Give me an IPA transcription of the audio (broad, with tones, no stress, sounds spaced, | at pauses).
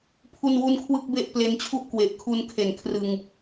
pʰ u˥˩ n w u˥˩ n kʰ w ɯ˥˩ k̚ b e˥˩ ʔ p l e˧ n t͡ɕʰ u˥˩ ʔ k w e˨˩ ʔ kʰ u˧ n kʰ e˨˩ n kʰ r ɯ˧ ŋ